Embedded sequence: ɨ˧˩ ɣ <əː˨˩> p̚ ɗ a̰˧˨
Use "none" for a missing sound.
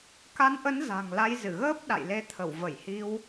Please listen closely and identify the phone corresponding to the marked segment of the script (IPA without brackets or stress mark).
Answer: əː˦˥